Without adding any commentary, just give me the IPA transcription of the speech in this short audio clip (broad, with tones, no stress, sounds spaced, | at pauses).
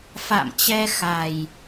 f a̰˧˨ m t͡ɕ ɛ˧ x a˨˩ j